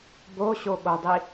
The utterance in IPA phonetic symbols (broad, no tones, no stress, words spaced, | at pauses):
boɕoɠodˤi